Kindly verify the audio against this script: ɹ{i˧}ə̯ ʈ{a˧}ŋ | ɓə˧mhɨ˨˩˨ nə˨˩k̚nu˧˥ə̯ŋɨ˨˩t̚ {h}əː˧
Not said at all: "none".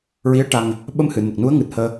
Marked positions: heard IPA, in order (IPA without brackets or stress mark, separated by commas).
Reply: i˧˥, a˧, h